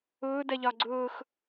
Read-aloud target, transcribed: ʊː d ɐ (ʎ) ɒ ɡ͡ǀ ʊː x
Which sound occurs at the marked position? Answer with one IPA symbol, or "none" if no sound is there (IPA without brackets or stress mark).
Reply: ʎ